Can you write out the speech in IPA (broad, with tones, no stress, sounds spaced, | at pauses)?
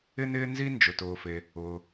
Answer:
ɪ˥ n ɪː˥ n z i˥ n d͡ʒ ʊ˩ t ʊː˩ f e˩ | ʊː˩